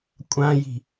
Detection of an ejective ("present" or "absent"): present